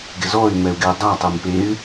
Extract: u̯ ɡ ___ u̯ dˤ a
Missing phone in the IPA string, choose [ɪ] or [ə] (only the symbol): ɪ